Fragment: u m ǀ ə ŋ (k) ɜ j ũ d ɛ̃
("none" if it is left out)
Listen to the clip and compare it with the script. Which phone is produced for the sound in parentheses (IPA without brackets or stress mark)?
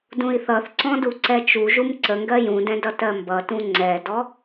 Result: ɡ